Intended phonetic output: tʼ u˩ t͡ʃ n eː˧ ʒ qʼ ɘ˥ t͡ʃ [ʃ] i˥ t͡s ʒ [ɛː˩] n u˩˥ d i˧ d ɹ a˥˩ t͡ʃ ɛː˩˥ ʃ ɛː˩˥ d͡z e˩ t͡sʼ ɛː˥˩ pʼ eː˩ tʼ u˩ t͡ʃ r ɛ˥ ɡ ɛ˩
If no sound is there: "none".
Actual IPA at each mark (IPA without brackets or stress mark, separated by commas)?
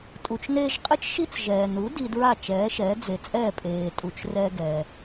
ʃ, ɛː˩